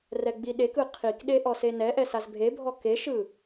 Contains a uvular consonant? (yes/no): yes